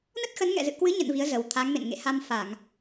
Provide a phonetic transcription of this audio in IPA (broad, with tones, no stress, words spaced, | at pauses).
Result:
nə˦˥t̚xə˨˦nŋɛ̰˧˨ zɨ̰˧˨kwɨ˨˦ɲə̰˧˨n vi˨˦ə̯zə˨˩wt̪ʰa˨˦ŋ mḛ˧˨n ŋḛ˧˨ha˧m fa˧˩˨ŋ